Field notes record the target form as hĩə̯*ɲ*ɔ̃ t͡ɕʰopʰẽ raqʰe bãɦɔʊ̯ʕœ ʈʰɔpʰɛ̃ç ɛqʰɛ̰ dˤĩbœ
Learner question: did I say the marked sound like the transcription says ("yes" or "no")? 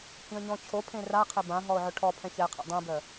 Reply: yes